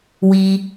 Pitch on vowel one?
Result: low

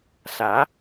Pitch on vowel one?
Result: rising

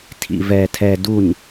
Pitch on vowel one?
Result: low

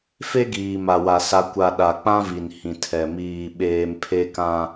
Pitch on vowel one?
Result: high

